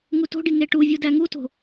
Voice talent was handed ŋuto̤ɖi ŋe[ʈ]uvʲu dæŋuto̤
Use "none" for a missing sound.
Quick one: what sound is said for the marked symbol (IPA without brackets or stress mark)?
ʈ